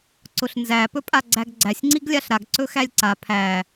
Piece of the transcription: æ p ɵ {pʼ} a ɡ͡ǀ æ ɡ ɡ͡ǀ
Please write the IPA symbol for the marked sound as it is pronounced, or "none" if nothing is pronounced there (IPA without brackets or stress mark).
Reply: pʼ